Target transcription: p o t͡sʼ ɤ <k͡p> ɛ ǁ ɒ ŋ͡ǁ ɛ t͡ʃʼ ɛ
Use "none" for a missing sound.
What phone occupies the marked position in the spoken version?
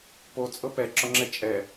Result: p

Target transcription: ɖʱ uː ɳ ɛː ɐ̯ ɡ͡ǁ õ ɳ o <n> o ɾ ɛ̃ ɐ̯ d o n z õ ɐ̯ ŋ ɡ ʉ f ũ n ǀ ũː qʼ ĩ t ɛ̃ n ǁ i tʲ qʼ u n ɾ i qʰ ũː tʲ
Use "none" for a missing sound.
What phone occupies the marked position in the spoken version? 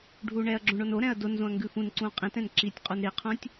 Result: n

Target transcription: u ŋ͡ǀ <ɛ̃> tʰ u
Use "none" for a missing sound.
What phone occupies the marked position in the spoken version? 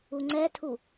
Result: ɛ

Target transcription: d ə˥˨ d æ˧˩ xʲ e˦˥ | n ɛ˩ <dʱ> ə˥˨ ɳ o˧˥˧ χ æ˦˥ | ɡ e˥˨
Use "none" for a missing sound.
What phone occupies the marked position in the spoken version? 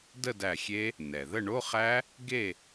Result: ð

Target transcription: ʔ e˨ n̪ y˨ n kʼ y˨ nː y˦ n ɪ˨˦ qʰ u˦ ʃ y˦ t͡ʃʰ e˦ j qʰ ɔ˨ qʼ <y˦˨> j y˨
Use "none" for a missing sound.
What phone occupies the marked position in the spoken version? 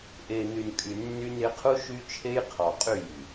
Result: y˦˨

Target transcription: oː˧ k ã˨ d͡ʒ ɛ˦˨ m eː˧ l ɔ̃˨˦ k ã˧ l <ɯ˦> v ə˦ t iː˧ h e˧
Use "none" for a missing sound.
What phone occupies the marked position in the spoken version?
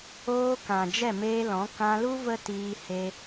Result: u˦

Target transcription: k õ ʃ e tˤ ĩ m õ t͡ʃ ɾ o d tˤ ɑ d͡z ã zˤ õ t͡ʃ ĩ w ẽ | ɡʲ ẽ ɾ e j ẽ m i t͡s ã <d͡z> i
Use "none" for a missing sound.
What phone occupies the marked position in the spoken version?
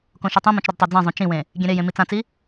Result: t͡s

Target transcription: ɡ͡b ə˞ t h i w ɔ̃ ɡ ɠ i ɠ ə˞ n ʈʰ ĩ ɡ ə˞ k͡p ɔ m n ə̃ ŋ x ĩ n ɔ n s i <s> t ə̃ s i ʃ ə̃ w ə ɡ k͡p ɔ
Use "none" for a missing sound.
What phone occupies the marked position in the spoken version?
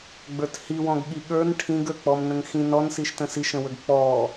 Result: ʃ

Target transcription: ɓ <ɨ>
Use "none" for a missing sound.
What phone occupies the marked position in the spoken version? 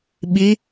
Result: i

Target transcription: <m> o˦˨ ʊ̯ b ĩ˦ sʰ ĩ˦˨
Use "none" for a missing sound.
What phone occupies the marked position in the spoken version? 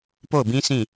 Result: p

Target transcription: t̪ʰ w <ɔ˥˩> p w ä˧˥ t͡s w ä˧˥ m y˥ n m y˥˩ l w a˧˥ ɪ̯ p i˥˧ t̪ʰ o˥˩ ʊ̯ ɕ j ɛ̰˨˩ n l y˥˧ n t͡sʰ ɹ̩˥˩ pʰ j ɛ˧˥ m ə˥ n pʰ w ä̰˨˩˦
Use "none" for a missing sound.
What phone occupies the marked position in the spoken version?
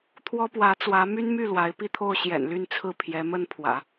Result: ɔ˥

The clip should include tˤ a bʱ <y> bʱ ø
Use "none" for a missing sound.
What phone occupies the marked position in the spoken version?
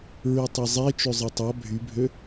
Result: y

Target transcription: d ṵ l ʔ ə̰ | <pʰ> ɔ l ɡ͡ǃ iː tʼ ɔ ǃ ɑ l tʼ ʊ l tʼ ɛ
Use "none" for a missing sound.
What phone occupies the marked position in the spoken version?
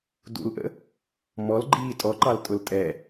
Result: m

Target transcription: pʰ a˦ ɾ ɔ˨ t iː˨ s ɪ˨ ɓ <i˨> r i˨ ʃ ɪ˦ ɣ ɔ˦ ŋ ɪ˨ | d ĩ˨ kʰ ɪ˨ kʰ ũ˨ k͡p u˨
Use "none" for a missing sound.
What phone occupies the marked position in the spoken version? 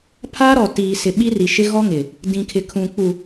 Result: i˦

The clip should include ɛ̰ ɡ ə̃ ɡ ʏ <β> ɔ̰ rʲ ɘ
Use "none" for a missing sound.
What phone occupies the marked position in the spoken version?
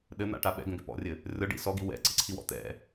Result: p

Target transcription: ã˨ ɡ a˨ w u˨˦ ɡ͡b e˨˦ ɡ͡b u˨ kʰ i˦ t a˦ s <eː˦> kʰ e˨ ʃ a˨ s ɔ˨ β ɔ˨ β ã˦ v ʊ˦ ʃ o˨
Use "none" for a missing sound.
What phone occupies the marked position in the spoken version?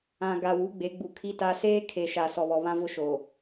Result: eː˦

